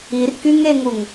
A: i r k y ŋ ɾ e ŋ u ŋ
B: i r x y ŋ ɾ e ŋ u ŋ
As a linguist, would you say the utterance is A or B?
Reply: A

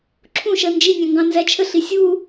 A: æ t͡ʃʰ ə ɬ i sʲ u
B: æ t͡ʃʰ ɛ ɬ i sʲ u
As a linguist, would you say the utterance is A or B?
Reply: A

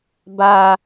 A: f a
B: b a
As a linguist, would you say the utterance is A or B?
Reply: B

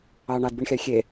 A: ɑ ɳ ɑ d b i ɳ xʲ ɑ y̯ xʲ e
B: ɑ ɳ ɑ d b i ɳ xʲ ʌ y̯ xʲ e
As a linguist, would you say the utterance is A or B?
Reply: A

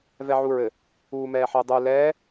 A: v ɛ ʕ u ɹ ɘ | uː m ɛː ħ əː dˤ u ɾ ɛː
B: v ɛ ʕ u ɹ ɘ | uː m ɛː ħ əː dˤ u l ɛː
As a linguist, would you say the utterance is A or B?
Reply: B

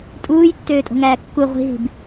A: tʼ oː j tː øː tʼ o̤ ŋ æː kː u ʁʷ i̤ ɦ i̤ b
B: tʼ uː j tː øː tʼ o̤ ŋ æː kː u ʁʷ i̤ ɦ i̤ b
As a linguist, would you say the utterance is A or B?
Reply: B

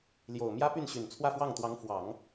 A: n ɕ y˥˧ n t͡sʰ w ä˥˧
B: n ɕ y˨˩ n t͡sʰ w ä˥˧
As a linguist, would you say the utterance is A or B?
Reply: B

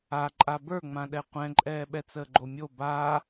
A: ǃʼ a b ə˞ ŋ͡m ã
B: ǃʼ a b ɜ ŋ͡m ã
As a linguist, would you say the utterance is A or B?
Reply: A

